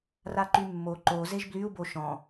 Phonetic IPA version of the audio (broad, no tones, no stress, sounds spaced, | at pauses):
r a ǃ y mː o ǃ o z e ʒ b l y u̯ b o ʃ ɔ̃